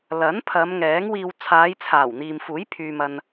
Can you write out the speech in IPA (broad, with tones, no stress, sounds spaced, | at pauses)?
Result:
l ɐ˨˥ n pʰ ɐ˨˧ m ŋ ɛː˨˥ ŋ w iː˧ w t͡sʰ aː˨˧ j t͡sʰ aː˨˩ w n̪ iː˨ m f uː˨˥ j pʰ yː˧ m ɐ˧ n